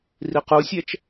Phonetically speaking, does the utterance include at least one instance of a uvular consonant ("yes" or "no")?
yes